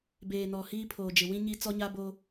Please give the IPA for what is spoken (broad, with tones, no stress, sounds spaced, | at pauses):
b eː˨ n ɔ˨ h iː˦ pʰ oː˨ d͡ʒ ɪ˨ w ĩ˦ ɲ i˦ t͡s ɔ˦ ɲ a˦ b oː˦